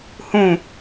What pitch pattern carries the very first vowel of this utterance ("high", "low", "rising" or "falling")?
falling